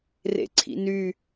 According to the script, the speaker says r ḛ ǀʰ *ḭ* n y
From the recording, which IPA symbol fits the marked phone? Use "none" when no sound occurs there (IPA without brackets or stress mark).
ḭ